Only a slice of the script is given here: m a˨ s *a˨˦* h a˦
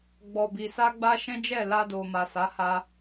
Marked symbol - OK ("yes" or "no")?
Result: yes